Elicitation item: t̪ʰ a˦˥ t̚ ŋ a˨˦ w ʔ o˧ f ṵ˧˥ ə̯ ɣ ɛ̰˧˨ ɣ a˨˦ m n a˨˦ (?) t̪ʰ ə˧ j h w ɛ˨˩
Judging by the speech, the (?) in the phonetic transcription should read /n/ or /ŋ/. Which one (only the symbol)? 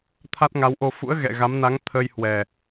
ŋ